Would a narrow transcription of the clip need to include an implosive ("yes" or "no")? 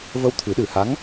yes